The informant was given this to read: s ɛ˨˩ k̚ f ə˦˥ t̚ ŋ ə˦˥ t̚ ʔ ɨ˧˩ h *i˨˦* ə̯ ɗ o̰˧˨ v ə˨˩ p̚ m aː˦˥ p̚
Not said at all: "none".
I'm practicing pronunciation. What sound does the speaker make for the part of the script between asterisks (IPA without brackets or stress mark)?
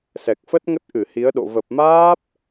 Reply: i˨˦